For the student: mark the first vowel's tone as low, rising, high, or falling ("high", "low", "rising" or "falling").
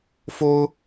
high